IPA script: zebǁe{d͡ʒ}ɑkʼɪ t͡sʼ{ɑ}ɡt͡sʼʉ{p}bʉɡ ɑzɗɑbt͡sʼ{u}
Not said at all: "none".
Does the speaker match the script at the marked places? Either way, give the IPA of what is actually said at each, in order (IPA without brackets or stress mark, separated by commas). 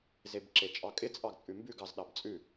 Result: t͡ʃʼ, ɑ, m, ʉ